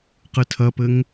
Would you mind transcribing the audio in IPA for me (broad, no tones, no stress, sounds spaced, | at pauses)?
q ɨ tʰ ɐ p ɘ ŋ